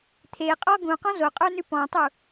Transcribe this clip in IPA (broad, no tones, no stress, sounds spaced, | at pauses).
t̪ʰ e qʼ ɔ ɡ ũ q ɔ̃ z o qʼ ə˞ n ʉ p ɔ̃ tˤ u